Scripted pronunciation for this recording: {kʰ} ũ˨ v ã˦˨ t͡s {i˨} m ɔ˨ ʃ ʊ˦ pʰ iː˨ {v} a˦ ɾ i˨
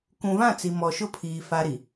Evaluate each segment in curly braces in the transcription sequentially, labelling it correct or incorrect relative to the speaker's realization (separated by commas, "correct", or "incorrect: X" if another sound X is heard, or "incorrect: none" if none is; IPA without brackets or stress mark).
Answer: incorrect: k, correct, incorrect: f